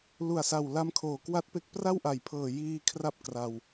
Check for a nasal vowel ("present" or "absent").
absent